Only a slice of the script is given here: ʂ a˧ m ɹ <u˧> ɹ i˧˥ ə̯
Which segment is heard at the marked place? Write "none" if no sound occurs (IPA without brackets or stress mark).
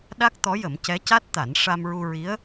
u˧